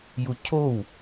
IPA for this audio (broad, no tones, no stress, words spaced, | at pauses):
jucʰow